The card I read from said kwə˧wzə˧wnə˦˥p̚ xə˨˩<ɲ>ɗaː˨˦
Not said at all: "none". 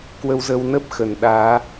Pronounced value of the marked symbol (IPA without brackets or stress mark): n